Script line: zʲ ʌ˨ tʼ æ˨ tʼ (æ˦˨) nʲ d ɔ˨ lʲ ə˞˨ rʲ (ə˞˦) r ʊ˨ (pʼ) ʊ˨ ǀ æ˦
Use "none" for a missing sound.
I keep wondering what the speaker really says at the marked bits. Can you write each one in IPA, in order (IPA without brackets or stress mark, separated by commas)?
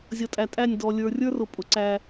æ˦˨, ə˞˦, pʼ